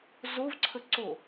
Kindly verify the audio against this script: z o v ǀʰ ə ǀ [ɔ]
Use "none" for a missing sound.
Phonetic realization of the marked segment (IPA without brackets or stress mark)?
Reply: o